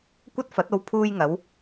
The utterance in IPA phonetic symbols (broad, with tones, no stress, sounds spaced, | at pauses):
kʷ ɐ˥ t̚ f ɐ˨˥ t̚ o˧ w pʰ uː˧ j ŋ ɐ˨˧ w